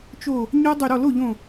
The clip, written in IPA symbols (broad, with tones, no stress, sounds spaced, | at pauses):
t͡ʃ o˧˩ | ɲ ɔ˦˥ dˤ ʏ˧˩ ɾ ɔ˥˩ l o˥˩ ʎ õ˧˩